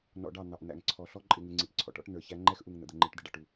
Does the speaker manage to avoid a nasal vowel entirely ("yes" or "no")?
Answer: yes